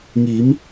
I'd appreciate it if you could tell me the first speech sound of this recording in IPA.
ŋ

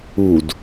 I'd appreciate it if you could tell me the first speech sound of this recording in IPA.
u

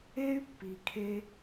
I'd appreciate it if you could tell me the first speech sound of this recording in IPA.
e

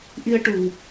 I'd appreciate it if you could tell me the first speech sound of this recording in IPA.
ʔ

